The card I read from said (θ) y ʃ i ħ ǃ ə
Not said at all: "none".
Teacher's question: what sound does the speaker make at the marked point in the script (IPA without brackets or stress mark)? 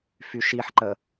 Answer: f